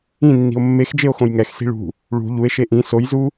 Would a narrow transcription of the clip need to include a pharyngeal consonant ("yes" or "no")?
no